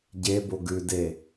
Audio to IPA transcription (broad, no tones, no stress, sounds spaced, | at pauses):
ɟ e b o ɡ ʉ d e